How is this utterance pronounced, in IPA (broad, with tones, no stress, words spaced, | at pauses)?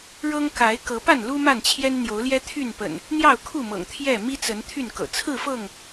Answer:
ɻɤ˦ŋ ka˨˦ɪ̯ kɤ˨˦pa˥˨nlu˦ ma˥˨nt͡ɕʰjɛ˦n n̪jo˨˦ʊ̯ljɛ˦t̪ʰy˥˨npə̰˨˩n | n̪jɑ˥˨ʊ̯kʰu˥˨mɤ̰˨˩ŋ t̪ʰjɛ˥˨ mi˦t͡sə˨˦n t̪ʰy˥˨nkɤ̰˨˩ t͡sʰɹ̩˥˨fɤ˥˨ŋ